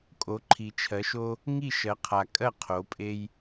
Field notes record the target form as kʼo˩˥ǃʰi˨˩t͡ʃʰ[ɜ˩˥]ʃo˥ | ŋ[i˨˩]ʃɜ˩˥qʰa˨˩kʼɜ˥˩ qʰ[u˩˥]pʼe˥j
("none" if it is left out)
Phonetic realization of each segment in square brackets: ɜ˩˥, i˥˩, o˩˥

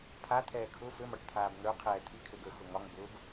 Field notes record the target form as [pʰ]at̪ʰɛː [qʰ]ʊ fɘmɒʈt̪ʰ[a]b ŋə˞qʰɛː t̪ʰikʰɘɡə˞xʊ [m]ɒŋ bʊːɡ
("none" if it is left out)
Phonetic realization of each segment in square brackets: pʰ, kʰ, aː, ŋ

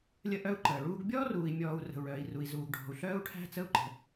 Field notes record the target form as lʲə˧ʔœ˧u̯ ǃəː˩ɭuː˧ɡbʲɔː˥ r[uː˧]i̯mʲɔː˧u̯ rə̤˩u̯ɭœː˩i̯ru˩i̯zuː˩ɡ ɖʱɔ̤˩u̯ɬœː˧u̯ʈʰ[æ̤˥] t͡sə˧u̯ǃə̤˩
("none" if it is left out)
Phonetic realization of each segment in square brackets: uː˧, æ̤˧

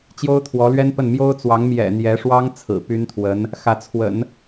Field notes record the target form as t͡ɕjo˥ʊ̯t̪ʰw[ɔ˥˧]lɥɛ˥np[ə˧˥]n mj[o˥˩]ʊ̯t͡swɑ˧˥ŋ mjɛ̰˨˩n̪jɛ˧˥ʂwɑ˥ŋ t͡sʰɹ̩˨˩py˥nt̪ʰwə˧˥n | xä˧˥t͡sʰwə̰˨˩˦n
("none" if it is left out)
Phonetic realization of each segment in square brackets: ɔ˧˥, ə˥˩, o˥

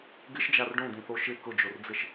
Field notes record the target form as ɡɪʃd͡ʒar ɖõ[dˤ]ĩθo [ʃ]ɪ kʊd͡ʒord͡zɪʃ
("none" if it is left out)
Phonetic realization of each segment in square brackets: d̪, ʃ

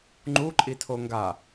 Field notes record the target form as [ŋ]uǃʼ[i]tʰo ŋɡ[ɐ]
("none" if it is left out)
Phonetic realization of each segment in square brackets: ŋ͡ǃ, i, a

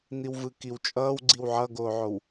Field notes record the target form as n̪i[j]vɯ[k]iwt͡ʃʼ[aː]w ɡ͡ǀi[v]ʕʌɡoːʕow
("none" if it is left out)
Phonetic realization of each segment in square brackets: w, k, ʌː, w

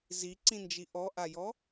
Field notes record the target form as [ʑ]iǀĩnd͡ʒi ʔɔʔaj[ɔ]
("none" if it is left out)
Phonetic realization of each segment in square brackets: z, ɔ

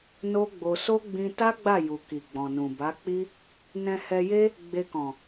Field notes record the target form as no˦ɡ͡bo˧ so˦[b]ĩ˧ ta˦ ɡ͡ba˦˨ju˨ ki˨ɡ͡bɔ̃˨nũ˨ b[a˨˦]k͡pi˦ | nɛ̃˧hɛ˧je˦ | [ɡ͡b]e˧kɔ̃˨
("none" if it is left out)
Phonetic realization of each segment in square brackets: ɡ͡b, a˨˦, ɡ͡b

